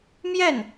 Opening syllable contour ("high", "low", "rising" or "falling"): falling